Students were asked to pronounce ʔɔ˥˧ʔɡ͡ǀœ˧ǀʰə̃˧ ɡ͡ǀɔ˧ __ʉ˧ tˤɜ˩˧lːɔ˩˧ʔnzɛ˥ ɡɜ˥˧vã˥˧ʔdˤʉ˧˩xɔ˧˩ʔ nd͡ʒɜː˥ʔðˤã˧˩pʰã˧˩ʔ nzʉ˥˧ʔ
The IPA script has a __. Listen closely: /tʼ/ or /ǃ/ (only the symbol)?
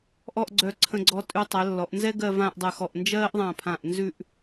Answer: tʼ